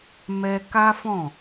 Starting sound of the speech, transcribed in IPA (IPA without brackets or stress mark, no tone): m